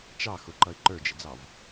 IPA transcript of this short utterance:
t͡ʃ ɑ x ʊ ǃ ʌ ɪ̯ ǃ ə˞ d͡ʒ ɪ d͡z ɑ v

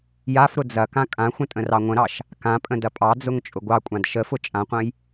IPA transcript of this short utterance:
j a f ɾ ʊ d͡z ɐ k ã kʼ ã xʷ ə̃ tʼ ə̃ r ɑ ŋʷ ə̃ ɾ ɑ ʃ | k ã pʼ ə̃ d ɐ pʼ ɑ d͡z ʊ ŋ t͡ʃʼ ʊ ɡʷ ɑ kʷʼ ã d ʃ ə f ʊ t͡ʃʼ ã qʷ ɐ̃ j

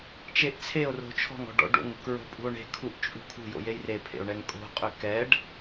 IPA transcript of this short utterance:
t͡ʃ e ʔ t͡sʰ e o̯ r o̤ t͡ʃʰ ɔ̤ ŋ ɔ̤ ɖ ɔ̰ ɖ o̰ ŋ u k ɹ o̤ pʼ ṳ o̯ ɳ e̤ kʰ u ʔ t͡ʃʼ ṳ kʰ ṳ j o̰ j e j r e pʰ ḛ o̯ ɳ ɛ ŋ kʼ o̤ qʼ ø k ɛ ɖ

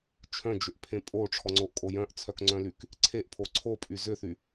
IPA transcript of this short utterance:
t͡ʃʰ œ̃ d͡ʒ ʏ ʔ pʰ ẽ pʼ o ʈ͡ʂʰ ɔ ŋ͡ǀ o ʔ kʼ o j œ̃ ʔ t͡sʰ œ k ŋ͡ǀ œ̃ l y k | ǀʰ e ʔ pʰ o ǀʰ o pʼ y z ʏ θ y

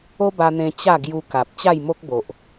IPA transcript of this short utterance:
o˦ b a˧ n̪ ẽ˧ t͡ɕ a˥˧ ɡ j u˧ k a˨ p̚ t͡ɕ a˥˧ j m o˦ k̚ b o˨ ʔ

